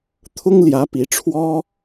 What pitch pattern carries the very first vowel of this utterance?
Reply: high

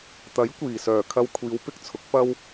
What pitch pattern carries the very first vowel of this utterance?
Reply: rising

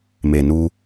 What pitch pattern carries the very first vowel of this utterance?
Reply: low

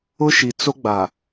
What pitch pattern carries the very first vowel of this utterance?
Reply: high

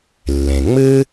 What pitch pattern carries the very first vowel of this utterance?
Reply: low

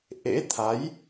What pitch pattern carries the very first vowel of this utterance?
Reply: rising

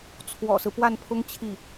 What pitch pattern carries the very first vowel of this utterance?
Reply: low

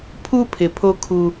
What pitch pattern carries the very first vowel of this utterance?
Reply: high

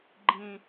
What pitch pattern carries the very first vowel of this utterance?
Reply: high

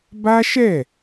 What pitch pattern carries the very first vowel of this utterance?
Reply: high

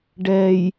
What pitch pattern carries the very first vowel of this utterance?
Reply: low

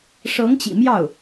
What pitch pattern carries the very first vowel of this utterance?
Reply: rising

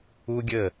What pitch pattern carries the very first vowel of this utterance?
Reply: high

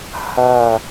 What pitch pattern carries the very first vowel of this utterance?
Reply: falling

